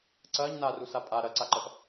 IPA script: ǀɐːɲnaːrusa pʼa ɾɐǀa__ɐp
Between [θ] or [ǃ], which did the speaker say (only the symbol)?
ǃ